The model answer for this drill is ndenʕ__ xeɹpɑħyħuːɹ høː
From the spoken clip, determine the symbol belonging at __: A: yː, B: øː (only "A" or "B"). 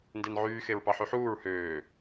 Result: A